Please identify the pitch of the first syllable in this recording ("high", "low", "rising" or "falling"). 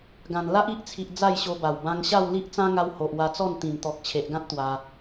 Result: low